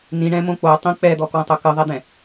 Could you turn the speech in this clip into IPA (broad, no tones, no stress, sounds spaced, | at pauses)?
n ĩ ɳ ɛ̃ m õ k͡p o tˤ ĩ k͡p ɛ d̪ ɔ k w ə̃ tˤ o k ɨ ðˤ ɛ d̪ ɛ̃